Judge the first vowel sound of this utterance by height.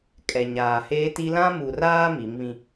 mid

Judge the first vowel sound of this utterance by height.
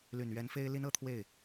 high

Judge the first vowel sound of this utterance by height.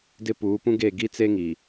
high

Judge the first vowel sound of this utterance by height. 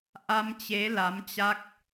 low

